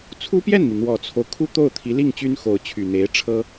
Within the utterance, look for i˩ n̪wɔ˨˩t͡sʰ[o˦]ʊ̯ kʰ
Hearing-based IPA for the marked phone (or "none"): o˦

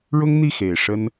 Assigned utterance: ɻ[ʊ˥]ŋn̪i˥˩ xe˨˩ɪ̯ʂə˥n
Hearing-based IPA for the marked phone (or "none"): ʊ˥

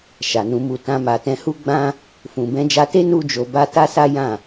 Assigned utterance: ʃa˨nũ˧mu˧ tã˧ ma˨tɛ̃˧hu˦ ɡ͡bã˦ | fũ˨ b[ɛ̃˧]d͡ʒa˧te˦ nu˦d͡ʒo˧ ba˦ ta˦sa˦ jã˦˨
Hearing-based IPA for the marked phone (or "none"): ɛ̃˧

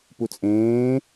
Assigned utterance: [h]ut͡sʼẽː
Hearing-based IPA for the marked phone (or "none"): p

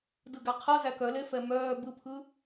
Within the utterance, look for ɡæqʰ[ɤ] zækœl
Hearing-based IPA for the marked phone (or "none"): ɤ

